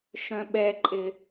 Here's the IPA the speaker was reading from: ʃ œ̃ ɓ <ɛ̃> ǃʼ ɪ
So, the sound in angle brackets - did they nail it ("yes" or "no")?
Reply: no